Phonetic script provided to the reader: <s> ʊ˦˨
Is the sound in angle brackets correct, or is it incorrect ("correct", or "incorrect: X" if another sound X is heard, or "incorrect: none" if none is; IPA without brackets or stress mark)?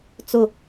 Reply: incorrect: t͡s